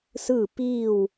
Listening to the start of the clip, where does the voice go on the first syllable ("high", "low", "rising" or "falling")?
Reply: falling